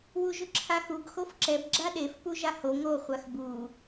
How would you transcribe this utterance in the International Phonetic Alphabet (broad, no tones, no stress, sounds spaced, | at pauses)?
w u ʒ ʊ ǁʰ a x u ɡ x o f ǁ ɛ b ɡ͡ǁ a ɗ e f p u ʒ a h o ŋ o χʷ a x b u